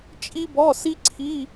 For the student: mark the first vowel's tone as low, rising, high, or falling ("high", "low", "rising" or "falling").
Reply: high